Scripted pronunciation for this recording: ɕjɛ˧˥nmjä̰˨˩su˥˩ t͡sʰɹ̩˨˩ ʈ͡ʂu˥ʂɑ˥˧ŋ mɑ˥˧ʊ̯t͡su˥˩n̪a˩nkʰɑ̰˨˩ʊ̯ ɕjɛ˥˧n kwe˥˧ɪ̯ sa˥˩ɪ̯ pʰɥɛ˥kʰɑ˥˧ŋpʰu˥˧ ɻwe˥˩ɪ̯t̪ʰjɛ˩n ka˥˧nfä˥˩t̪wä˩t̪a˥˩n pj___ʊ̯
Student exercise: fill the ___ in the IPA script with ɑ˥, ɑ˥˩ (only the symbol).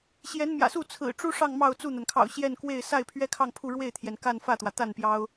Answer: ɑ˥